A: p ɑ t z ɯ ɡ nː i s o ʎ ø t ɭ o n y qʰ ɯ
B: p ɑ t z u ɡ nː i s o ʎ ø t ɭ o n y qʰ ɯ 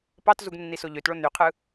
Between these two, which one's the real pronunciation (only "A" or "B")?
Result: B